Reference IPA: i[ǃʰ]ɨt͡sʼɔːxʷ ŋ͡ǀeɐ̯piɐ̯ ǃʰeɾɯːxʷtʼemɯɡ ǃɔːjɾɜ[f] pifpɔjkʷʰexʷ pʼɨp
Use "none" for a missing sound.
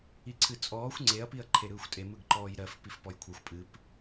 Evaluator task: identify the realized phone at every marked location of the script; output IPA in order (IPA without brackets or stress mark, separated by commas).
ǀʰ, f